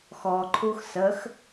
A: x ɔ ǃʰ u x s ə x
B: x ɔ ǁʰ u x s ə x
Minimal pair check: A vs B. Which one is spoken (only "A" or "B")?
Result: A